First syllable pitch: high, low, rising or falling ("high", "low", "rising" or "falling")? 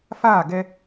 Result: falling